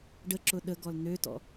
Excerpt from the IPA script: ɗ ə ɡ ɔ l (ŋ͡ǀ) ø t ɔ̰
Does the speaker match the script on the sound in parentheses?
no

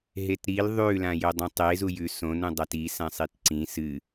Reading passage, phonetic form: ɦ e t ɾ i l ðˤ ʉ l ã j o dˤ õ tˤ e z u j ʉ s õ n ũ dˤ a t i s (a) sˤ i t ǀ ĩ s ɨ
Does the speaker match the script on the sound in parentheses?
no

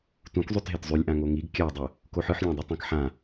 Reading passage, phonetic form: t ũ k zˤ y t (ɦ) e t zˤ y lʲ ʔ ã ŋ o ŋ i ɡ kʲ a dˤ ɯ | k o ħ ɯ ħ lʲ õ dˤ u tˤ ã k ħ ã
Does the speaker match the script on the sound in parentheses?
yes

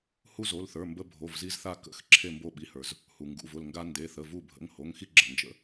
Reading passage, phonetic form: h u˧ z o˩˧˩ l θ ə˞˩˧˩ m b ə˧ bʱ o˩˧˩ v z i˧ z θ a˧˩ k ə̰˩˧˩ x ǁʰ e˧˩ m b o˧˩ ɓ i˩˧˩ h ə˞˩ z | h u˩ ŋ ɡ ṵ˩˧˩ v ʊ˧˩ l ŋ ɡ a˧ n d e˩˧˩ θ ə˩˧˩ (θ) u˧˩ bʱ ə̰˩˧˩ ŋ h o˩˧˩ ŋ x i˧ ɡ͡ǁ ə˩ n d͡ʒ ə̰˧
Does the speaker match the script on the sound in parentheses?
no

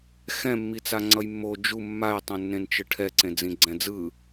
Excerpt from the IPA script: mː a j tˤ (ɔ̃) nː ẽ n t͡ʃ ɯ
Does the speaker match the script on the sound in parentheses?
no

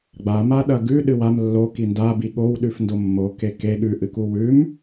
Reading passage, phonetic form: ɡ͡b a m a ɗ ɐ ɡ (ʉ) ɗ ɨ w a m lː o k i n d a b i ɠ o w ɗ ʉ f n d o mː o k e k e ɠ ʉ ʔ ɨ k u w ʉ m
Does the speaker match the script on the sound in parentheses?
yes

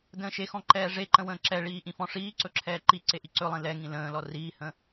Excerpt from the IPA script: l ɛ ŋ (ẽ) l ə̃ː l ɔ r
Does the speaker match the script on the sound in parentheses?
no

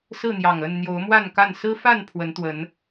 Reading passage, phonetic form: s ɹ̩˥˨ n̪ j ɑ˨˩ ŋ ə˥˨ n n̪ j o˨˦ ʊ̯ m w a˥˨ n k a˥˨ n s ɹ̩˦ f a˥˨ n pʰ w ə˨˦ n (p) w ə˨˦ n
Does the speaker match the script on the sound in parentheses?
no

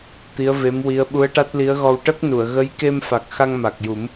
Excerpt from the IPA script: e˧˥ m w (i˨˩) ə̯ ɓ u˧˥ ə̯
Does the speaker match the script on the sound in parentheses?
no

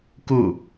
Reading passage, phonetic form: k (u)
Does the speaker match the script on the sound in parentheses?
yes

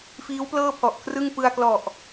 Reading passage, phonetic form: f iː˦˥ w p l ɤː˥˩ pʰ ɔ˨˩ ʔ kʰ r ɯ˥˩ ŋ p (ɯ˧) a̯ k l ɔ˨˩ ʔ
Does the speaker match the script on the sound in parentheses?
yes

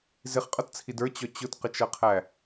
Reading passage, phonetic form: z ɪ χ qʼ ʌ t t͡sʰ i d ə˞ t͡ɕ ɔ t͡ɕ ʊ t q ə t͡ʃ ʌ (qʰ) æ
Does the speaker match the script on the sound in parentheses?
yes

